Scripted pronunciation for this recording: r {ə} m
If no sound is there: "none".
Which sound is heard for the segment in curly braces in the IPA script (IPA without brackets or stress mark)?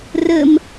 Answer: ə